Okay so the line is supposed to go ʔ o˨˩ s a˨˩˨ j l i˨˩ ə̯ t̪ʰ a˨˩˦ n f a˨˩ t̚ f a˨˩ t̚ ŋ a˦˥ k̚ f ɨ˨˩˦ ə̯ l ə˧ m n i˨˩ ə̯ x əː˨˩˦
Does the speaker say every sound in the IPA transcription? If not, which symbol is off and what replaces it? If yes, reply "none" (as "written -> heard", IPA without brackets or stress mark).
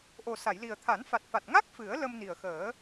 none